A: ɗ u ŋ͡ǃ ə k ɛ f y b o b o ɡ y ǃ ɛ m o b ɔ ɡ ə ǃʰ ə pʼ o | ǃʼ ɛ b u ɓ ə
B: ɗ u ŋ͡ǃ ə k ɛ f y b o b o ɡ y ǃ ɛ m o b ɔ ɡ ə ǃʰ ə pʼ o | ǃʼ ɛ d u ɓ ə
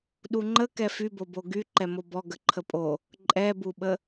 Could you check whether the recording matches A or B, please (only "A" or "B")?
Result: A